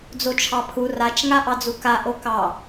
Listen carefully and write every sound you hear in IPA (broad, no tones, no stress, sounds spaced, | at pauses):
d͡z o t͡ʃʰ ɑ pʰ u r a t͡ʃ ŋ a ʔ ɑ d͡z u k a ʔ o k ɑ